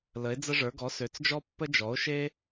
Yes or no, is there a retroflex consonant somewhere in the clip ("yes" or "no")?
yes